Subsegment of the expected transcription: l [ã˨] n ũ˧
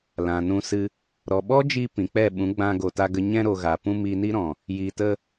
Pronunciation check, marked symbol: correct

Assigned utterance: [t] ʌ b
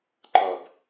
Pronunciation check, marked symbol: incorrect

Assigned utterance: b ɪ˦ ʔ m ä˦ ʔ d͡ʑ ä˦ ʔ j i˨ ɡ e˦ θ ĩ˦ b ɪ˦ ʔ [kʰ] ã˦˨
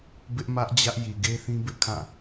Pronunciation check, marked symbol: correct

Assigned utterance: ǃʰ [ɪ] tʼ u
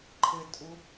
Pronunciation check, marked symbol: correct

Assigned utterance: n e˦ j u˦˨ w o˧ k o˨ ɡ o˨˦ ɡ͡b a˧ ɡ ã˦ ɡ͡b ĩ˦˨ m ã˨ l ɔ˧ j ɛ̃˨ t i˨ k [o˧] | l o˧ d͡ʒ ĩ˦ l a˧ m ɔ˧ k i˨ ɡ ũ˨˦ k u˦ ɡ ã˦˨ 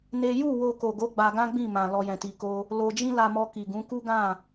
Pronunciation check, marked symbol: correct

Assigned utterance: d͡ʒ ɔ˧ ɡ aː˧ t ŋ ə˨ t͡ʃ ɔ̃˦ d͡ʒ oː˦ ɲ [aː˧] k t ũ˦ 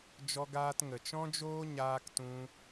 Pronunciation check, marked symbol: incorrect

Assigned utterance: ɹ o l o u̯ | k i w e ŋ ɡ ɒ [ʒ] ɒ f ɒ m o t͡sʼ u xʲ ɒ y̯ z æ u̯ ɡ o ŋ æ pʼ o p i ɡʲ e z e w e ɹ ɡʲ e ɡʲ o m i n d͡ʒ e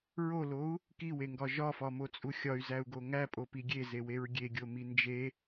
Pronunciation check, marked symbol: correct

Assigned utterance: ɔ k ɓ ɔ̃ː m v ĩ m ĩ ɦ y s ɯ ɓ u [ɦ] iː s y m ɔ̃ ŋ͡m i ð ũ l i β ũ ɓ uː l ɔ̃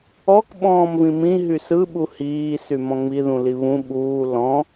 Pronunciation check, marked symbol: incorrect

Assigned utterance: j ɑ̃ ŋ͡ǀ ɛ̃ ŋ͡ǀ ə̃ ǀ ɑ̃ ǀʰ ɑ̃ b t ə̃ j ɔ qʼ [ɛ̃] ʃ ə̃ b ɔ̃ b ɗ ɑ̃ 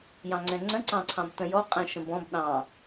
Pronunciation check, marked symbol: correct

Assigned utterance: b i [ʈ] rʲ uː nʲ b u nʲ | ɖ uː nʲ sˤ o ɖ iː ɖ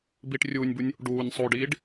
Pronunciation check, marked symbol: correct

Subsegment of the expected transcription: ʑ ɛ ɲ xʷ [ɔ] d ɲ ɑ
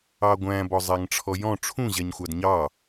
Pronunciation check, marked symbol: incorrect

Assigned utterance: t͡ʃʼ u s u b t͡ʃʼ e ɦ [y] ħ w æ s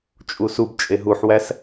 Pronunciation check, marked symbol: incorrect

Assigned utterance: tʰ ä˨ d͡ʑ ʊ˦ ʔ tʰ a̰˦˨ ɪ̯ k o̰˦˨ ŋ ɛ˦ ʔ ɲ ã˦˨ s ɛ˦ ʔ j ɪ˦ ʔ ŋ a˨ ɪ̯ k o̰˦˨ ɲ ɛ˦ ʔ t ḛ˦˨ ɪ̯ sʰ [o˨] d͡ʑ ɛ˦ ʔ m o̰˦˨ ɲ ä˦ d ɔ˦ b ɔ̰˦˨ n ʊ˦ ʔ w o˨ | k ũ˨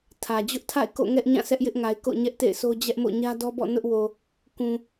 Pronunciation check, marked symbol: incorrect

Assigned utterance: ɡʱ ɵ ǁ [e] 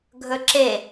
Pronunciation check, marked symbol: correct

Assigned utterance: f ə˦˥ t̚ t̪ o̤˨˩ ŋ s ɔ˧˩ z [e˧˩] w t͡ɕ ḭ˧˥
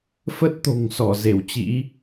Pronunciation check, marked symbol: correct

